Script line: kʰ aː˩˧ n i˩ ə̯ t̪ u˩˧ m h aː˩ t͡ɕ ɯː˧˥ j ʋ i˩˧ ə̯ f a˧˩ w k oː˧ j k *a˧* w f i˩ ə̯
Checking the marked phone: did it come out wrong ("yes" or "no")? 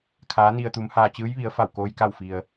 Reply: yes